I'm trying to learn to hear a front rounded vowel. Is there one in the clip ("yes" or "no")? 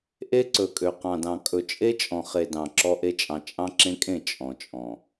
yes